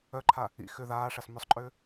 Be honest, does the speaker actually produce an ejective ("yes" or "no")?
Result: yes